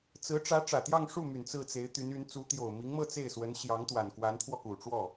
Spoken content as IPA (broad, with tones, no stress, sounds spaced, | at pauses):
t͡s ɹ̩˧˥ ʈ͡ʂ ä˧˥ ʈ͡ʂ ä˨˩ t̪ j ɑ˥˧ ŋ ʂ u˥˩ m y˨˩ n t͡s ɹ̩˥˩ t͡s e˧˥ ɪ̯ t̪ y˧˥ n y˧˥ n t͡s u˧˥ t̪ j o˨˩ ʊ̯ m i˧˥ ŋ m ɤ˥˧ t͡s e˥˩ ɪ̯ s w ə˧˥ n ɕ j ɑ˧˥ ŋ t̪ w a˨˩ n k w a˧˥ n t̪ʰ w ɔ˧ k u˨˩ ʈ͡ʂ w ɔ˥˩